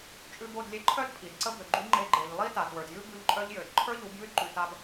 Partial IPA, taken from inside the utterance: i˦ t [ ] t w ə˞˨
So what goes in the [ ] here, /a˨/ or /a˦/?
a˨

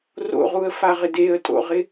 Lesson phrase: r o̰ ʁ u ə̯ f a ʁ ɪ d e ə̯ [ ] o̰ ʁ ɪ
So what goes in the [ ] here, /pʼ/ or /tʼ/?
tʼ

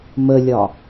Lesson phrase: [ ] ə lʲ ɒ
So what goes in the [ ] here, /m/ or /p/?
m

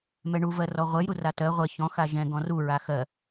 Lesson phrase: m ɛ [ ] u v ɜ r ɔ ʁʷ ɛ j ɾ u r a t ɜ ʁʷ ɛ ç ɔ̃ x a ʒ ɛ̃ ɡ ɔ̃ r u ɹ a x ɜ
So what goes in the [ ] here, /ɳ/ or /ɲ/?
ɳ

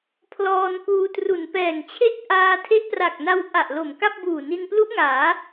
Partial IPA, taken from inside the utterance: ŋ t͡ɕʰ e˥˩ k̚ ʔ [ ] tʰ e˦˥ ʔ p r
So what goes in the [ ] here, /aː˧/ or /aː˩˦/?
aː˧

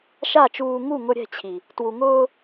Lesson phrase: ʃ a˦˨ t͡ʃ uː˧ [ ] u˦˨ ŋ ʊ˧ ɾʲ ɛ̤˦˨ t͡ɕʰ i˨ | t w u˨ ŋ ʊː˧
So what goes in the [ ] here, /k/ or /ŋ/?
ŋ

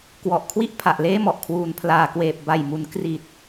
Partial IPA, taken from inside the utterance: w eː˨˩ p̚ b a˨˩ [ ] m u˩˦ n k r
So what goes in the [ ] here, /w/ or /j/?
j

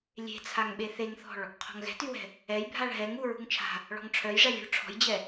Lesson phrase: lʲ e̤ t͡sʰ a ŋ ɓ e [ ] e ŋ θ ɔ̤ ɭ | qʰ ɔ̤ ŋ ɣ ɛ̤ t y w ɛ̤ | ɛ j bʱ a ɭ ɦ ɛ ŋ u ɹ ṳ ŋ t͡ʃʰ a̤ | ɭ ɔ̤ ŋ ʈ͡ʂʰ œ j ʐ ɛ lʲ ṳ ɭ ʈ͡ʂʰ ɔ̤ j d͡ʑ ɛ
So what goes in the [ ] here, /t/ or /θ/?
θ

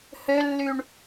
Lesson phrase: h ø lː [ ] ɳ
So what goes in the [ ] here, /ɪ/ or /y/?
y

